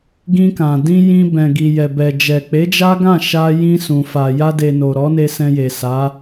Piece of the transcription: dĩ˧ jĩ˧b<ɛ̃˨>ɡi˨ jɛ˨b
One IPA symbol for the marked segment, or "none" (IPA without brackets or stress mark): ɛ̃˨